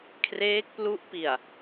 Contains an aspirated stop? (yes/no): yes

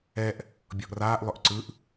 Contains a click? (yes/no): yes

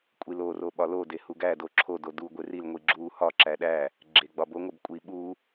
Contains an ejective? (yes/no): yes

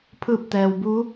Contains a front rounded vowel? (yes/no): no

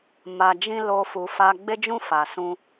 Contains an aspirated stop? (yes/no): no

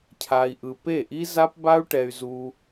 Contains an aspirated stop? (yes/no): yes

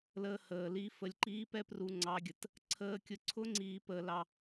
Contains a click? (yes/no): yes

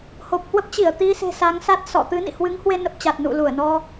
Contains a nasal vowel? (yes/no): no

